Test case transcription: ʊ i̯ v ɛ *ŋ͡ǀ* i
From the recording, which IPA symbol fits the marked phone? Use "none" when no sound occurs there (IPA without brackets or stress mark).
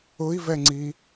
ŋ͡ǀ